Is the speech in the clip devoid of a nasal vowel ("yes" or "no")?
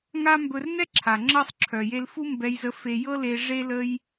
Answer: yes